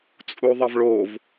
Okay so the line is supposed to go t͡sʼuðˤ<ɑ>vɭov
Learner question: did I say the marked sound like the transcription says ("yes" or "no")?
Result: no